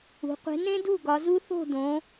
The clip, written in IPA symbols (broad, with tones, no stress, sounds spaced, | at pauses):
ṳ˩˧ qʷ e̤˨˥ n ẽ˦ d ṳ˥˩ ɡ ɒ˩˧ z u˦ θ o̤˥˩ d õ˩˧